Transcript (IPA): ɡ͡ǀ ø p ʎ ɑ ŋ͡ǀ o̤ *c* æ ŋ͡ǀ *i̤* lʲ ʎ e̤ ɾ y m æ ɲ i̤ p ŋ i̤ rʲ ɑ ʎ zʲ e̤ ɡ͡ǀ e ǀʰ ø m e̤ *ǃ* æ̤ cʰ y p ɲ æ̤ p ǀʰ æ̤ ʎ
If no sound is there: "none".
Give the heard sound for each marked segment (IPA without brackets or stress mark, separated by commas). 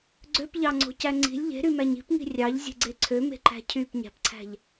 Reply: c, i̤, ǃ